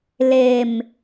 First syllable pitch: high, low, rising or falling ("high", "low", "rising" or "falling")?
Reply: low